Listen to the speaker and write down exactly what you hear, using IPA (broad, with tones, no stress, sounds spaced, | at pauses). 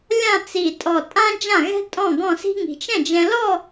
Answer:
lʲ ã˥˧ t͡s i˧˩ tʼ ɔ˧˩ tʼ ã˥ d͡ʒ ã˥˩ ɣ ɛ̤˥ tʼ ɔ̃˥˩ ɡ ɔ̃˥˧ s i̤˥ ŋ i̤˧ t͡ʃ ɛ̃˥˩ d͡ʒ ɛ̃˧ l ɔ˥˧